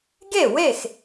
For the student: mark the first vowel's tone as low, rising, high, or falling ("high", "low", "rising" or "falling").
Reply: falling